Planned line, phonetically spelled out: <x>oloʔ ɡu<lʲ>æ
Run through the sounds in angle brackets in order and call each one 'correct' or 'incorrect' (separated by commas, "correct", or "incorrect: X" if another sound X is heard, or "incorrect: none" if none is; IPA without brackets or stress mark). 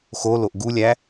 correct, correct